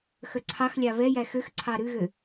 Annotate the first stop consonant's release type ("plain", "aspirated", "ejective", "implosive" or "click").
click